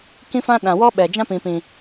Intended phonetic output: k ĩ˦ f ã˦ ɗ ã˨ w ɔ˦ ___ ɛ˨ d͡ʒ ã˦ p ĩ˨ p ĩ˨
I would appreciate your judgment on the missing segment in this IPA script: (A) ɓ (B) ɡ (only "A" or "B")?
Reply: A